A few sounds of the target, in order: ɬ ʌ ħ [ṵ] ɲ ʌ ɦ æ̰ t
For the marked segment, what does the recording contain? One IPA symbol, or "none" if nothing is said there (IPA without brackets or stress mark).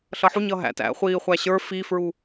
u